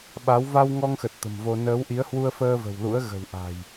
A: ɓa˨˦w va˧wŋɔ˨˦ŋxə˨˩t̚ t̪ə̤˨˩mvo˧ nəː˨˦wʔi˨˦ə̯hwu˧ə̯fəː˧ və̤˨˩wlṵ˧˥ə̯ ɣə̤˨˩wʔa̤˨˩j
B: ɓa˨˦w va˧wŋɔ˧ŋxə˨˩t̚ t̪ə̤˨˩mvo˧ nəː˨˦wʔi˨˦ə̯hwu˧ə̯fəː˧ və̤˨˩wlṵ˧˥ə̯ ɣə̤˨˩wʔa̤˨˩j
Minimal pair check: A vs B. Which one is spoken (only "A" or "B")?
B